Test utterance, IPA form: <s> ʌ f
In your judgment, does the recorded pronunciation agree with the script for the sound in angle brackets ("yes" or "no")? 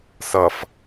yes